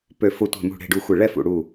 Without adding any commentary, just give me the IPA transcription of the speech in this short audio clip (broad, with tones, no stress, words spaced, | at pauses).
pø˧˩fʊ˧˩ tʷɛ̤˧˩mṳ˧˩ɽe̤˧˩ɖu˧˩ xʷe˧˩ɭɛ˥˨fṵ˧˩ɽu˧˩